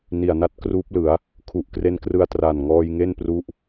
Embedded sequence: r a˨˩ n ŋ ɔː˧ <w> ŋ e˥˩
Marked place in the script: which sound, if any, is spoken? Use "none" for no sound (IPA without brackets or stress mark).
j